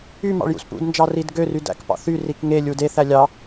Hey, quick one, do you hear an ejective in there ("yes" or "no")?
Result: no